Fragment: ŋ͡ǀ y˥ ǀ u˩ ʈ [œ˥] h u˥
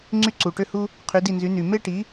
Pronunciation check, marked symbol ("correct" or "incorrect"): incorrect